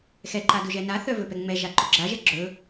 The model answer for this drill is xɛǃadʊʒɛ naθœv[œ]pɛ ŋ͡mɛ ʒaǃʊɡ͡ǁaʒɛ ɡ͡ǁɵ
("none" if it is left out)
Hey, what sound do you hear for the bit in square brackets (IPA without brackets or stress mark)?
ɵ